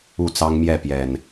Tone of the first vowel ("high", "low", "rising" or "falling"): falling